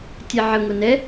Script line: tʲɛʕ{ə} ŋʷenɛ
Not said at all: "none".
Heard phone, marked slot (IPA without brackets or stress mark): ə